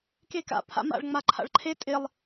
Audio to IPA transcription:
k e k a̰ pʰ a̰ m a̰ ɭ ŋ͡m a ǃʰ a̰ ɭ ǃʰ e tʼ ɪ lˠ

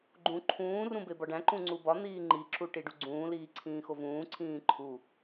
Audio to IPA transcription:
ɡ͡ǃ ũ ǃʰ ũː r ũ b e b ɒ ɖ æ̃ ǃ ũ ŋ͡ǀ u b ɒ n̪ iː ŋ͡ǃ i ǁ u ʈ i ɖ u ɡ͡ǀ ũː l iː ǀʰ ĩː x o v ũː ǀʰ ĩː ǃʰ u

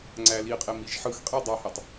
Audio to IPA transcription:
ŋ͡ǀ æ l i qʼ e m i ʒ ħ ɯ x qʼ i dˤ ɑ h æ tˤ

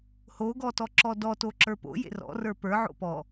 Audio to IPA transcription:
h o ɡ ɔ t ɔ ǁ ɔ d ɔ t o ǁ ə˞ p o̰ j ḛ r ɔ̰ r ə˞ p ə˞ ʕ o̰ p ɔ

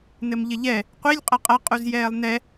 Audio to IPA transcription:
n ɘ m ʎ ɘ ʎ ɛ | qʷ i lʲ qʼ ɐ qʼ ɐ qʼ u z j ɛː lˠ n ɛ

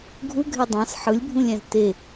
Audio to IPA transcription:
ɡʱ u ɡʱ e dˤ ɑ̃ s ħ ɯ lʲ bʱ ũ lʲ æ̃ z t e

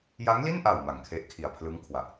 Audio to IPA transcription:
j a˦˥ ŋ l i˥˩ n ʔ a˨˩ w m a˨˩ ŋ kʰ e˦˥ ʔ kʰ i˨˩ a̯ pʰ l ɯ˦˥ ŋ kʰ w a˨˩ ʔ

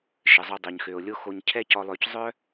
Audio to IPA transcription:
ʃ ə˨ zˤ o˧ dˤ ø˨ ɲ x ø˨ o̯ lʲ o˦ x o˧ ɲ cʰ ɛ˦ c ɔ˧ lˠ ø˧ c zˤ œ˦

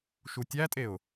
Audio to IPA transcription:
ʃ u tʲ æ tʼ e ʊ̯

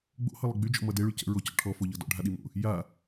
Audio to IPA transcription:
ɡ͡b o̰ h ɤ lˠ ʌ ɡ͡b y d͡ʒ ɔ̰ m ʌ d e ɭ y c ə̰ ɹ o c ɔ̰ ʈʰ ɔ f o ʎ ɤ d ɔ̰ ɖʱ a ɗ i m o̰ | j a

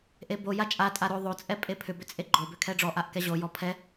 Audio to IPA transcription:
ʔ e b o j a t͡ʃʼ a tʼ a ɾ o ðˤ o t͡sʼ ɛ pʼ e pʰ ʏ b ʏ t͡sʼ e ɡ͡ǃ o b ʏ kʰ ɛ ɖ͡ʐ ɔ ʔ a ʔ k ɛ ʑ o j ɔ pʰ ɛ

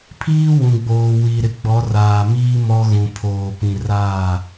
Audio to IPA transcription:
pʰ iː˦ w ũ˨ ɡ͡b oː˨ w i˨ ɾ ɪ˨ ɡ͡b ɔ˨˦ r aː˨ m iː˦ m ɔ˦ ɣ ũ˨ pʰ oː˨ p ĩ˨ r aː˦˨

